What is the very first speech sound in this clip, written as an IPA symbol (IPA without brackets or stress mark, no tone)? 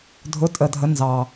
dʱ